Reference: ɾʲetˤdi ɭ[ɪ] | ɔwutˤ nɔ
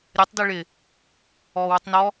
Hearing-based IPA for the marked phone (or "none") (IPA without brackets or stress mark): ɪ